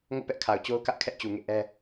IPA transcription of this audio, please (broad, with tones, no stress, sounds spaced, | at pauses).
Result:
ŋ o̰˦˨ p ɛ˦ ʔ kʰ a˨ ʊ̯ t͡ɕ o˦ ʊ̯ k ä˦ ʔ kʰ ɛ˦ ʔ t͡ɕ u˨ ŋ ḛ˦˨ ʔ ɛ˦